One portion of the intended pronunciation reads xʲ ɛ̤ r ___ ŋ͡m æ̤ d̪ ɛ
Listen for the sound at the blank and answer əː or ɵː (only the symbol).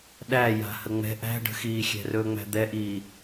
ɵː